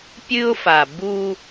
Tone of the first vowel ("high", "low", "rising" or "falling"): high